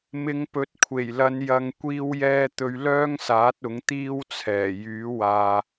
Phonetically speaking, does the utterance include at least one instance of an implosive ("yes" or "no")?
no